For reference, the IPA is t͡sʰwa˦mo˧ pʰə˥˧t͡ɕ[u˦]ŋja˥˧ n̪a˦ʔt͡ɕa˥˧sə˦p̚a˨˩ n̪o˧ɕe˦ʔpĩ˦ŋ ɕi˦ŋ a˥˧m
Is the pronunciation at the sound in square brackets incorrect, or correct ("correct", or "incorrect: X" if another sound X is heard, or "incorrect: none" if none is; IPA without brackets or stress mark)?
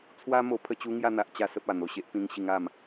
correct